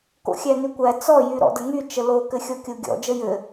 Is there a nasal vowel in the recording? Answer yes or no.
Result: no